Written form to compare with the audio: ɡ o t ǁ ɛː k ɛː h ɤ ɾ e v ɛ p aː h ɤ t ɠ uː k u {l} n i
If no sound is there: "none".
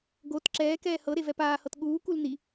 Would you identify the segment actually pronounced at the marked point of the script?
l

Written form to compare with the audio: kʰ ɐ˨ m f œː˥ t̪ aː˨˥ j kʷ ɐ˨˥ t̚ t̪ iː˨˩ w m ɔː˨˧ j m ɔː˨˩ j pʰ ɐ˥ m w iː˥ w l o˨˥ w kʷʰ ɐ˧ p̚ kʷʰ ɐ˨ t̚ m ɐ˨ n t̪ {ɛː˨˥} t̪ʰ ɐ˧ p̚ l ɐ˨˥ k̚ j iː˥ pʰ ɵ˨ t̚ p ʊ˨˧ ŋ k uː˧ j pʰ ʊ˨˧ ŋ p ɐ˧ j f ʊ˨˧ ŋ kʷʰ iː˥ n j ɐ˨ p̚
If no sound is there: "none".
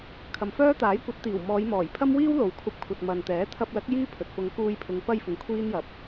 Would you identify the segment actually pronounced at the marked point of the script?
ɛː˨˥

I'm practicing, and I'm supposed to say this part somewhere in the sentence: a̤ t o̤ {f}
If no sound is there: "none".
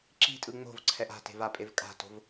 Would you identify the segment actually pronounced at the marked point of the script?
v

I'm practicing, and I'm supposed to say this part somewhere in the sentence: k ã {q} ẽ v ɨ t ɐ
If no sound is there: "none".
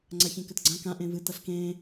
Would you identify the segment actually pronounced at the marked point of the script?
ʔ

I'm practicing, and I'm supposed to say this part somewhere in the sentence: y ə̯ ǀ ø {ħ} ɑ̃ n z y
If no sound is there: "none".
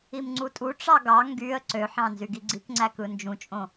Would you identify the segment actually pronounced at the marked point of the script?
ħ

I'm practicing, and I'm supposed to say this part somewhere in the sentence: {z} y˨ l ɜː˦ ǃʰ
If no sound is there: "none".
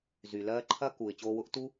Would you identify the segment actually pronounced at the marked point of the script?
z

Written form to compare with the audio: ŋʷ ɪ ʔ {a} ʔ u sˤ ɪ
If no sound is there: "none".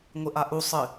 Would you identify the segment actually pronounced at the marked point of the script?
a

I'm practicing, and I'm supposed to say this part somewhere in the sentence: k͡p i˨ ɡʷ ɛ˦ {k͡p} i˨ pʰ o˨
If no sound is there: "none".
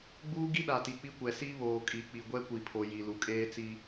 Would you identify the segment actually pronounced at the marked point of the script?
kʷ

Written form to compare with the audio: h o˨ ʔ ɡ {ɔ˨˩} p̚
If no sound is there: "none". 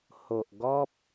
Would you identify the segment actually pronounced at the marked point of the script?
ɔ˦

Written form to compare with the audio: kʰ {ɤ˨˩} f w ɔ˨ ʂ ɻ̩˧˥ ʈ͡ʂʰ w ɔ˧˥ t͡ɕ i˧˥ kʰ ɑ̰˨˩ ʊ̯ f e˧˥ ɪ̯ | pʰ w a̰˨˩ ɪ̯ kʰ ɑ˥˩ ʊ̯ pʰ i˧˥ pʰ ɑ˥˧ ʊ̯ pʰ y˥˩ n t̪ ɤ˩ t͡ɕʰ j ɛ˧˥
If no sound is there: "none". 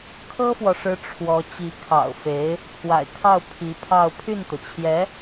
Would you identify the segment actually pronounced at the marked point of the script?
ɤ˥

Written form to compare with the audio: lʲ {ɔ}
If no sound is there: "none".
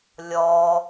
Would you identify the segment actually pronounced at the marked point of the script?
ɔ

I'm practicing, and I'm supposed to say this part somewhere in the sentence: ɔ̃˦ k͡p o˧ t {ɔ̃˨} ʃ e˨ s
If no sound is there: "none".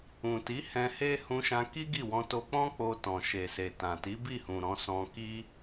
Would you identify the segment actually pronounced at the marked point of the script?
ɔ̃˨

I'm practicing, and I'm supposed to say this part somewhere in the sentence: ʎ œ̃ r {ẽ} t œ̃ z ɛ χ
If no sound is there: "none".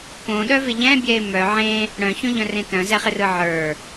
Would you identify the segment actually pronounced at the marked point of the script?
ẽ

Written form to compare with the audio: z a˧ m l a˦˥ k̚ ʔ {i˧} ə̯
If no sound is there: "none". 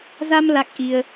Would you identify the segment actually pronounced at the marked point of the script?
i˧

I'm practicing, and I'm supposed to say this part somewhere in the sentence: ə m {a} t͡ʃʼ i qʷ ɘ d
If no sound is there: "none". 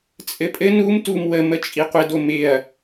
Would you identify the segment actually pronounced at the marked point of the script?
ə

